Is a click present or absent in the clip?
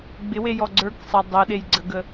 present